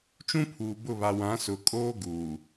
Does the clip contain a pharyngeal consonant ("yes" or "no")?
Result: no